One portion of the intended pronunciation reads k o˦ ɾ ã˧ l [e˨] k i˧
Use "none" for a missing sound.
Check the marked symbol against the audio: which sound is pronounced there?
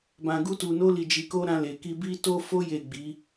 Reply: e˨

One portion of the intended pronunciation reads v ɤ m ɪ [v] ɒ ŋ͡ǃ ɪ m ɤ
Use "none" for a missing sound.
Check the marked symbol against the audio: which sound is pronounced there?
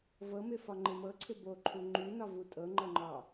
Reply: f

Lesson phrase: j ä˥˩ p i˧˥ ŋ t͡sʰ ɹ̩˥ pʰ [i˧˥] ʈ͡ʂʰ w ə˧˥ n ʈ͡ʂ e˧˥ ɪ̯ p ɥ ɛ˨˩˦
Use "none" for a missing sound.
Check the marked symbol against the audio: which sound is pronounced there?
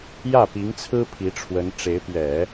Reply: i˧˥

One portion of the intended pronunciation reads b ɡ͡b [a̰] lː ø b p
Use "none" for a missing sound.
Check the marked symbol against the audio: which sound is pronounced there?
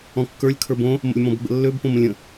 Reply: ə̰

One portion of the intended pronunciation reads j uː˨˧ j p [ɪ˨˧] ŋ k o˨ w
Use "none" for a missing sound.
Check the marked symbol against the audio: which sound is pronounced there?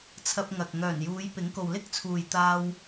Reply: ɪ˨˥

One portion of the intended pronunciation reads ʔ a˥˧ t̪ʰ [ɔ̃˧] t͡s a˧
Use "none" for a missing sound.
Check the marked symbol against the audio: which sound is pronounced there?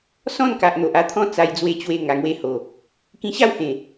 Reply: ɔ̃˦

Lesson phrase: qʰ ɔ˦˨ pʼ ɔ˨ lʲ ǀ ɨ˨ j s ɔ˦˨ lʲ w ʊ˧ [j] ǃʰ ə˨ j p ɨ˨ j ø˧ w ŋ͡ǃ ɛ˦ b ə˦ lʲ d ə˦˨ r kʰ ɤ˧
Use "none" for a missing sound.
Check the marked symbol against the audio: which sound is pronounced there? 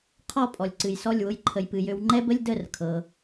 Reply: j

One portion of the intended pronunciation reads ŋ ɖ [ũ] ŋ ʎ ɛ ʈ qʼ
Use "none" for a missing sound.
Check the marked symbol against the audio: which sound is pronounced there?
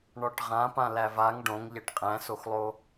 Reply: õ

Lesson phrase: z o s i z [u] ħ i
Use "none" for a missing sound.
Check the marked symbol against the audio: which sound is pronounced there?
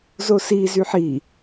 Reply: y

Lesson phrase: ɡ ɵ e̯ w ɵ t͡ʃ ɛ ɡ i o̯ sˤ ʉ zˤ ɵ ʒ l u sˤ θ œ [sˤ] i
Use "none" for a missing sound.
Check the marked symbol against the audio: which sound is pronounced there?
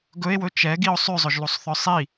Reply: sˤ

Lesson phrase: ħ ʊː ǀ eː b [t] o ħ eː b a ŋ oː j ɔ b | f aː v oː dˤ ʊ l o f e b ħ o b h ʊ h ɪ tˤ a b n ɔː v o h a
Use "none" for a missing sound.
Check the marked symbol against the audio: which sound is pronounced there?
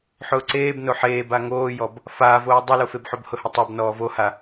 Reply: n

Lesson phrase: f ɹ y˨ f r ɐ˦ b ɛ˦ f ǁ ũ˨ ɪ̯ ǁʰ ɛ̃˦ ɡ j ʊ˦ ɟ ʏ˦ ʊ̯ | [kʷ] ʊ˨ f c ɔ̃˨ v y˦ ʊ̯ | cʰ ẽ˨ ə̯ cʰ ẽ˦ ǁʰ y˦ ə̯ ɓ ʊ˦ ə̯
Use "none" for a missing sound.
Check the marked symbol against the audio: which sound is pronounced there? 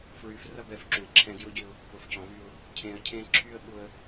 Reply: p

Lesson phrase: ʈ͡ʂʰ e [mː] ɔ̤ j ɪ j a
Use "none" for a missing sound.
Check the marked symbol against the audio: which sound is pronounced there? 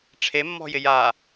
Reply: mː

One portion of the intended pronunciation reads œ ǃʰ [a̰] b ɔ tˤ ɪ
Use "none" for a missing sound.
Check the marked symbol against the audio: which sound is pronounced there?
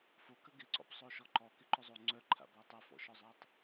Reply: a̰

